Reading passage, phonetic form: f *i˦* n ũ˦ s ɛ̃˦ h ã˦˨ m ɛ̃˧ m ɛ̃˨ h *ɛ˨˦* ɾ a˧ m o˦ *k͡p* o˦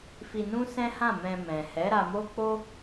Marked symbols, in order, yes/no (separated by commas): no, yes, yes